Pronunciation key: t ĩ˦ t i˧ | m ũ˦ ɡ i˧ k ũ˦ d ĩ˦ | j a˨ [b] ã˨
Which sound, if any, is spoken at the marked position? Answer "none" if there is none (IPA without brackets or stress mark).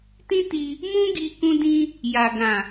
ɡ